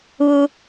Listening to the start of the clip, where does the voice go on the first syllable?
low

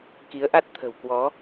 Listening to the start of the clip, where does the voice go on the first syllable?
rising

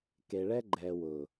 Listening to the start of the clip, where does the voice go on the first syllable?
low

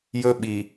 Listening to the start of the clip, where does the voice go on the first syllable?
high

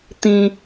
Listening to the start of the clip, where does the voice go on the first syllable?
low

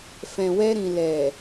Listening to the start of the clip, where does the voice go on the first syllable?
low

